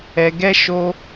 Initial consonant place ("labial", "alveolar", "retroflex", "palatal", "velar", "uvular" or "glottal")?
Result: velar